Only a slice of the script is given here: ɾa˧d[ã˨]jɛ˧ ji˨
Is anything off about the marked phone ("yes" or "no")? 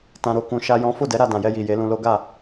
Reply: no